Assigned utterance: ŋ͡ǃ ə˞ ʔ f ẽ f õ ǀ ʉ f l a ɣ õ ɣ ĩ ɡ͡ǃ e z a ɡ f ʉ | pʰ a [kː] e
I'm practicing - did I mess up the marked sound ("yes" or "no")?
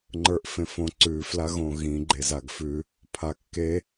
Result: no